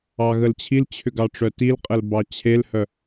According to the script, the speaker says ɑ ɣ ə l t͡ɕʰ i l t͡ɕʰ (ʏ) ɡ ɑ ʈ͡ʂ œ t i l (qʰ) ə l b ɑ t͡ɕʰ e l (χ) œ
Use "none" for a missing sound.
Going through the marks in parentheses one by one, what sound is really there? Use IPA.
ʏ, qʼ, h

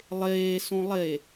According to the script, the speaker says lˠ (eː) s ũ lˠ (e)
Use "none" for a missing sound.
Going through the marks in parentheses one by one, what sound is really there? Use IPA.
eː, e

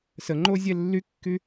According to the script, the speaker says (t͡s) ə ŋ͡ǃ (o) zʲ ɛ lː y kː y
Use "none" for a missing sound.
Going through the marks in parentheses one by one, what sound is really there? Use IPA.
s, o

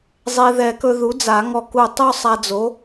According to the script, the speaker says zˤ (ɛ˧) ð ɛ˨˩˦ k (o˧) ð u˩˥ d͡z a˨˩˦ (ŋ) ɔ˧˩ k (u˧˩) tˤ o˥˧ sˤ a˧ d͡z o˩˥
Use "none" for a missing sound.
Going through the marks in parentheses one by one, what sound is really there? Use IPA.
e˧, ɵ˧, ŋ, u˧˩

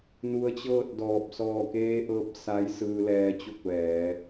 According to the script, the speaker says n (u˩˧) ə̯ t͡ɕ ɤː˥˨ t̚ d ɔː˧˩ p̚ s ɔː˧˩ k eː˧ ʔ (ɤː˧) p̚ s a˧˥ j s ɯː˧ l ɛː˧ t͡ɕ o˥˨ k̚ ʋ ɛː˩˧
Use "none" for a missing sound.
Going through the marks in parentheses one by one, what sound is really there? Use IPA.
u˧, ɤː˧

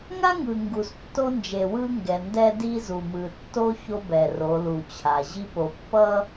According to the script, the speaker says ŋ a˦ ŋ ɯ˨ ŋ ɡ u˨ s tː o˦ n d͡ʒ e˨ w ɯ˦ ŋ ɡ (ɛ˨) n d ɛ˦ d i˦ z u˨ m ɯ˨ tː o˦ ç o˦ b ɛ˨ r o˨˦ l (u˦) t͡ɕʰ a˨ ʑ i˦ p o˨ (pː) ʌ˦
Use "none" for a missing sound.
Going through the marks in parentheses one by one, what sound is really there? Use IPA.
ɛ˨, u˨, pː

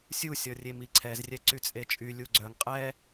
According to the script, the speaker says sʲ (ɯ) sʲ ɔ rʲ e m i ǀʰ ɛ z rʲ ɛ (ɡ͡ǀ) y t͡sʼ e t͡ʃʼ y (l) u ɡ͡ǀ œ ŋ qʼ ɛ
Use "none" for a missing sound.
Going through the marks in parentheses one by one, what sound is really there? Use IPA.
u, ǀ, lʲ

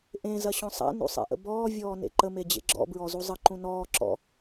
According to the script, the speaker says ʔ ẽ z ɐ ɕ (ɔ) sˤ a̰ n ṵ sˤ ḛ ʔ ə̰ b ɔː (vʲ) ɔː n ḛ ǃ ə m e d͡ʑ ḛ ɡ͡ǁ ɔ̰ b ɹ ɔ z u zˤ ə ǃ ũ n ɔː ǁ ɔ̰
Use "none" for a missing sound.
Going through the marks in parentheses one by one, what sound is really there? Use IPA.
ɔ̃, vʲ

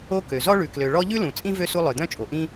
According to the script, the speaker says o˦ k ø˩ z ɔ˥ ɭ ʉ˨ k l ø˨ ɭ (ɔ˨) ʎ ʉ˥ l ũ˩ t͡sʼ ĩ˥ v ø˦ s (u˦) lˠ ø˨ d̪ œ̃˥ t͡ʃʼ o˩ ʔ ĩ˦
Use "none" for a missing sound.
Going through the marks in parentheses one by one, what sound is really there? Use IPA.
ɔ˦, u˦

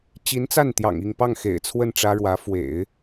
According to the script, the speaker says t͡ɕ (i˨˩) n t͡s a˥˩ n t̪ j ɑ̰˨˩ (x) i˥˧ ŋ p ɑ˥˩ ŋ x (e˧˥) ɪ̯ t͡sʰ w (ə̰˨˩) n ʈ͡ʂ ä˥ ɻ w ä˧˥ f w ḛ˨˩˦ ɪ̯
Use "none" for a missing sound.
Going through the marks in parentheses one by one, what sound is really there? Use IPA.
i˧˥, ŋ, ḛ˨˩, ə˥˩

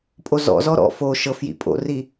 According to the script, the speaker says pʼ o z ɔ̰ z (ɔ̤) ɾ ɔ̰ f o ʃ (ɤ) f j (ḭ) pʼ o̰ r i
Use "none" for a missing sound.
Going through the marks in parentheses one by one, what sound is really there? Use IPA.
ɔ, ɤ, ḭ

